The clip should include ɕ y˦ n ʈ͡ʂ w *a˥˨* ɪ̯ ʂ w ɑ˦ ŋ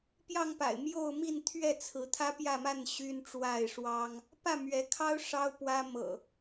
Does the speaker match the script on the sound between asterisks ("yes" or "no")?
yes